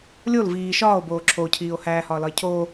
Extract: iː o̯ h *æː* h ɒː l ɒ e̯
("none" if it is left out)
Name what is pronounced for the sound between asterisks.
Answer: æː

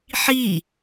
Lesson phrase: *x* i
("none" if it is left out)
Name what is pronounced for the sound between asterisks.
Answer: ħ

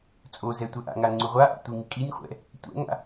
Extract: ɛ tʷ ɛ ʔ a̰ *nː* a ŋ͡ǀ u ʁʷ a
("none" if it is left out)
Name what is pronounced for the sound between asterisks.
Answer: ŋ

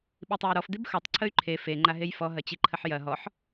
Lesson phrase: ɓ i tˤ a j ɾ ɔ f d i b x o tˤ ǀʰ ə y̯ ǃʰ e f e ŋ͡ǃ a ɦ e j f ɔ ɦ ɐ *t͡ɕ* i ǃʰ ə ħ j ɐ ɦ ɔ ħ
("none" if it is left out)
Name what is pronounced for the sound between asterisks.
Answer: t͡ɕ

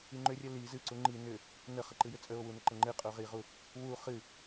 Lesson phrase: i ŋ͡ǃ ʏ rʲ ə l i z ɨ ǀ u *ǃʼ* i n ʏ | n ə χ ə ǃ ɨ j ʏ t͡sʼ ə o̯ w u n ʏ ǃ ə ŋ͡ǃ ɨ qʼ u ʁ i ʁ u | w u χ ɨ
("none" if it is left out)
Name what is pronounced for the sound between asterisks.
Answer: ŋ͡ǃ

